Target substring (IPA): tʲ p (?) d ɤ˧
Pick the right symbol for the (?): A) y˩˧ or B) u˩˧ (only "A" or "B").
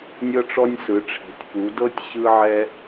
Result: B